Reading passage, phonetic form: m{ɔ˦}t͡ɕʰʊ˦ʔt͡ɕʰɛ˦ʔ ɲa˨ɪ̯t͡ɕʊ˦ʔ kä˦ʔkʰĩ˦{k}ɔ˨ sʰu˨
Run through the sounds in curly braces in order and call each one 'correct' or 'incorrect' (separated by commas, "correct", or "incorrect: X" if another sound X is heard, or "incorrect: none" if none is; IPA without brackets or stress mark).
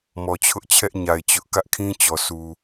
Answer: incorrect: ɔ˨, incorrect: t͡ɕ